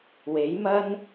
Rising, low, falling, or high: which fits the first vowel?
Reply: rising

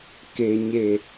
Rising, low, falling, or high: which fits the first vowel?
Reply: low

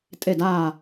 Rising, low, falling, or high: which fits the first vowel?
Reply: falling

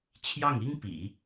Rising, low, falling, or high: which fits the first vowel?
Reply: falling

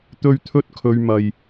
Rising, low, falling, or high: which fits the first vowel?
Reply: high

